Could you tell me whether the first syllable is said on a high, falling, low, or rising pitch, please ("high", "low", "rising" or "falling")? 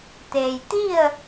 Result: low